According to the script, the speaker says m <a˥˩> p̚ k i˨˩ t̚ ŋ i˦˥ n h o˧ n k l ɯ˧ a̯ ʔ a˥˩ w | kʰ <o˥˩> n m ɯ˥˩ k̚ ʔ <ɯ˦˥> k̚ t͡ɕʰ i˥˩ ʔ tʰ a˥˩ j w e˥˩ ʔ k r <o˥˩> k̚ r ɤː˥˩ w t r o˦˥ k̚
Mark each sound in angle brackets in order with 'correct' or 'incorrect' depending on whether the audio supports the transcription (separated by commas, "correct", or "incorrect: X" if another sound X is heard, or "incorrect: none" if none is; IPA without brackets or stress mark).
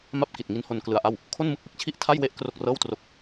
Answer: correct, correct, correct, correct